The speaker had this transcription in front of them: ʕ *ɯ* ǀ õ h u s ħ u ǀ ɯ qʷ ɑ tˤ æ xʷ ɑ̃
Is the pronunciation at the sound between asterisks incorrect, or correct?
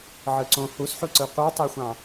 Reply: correct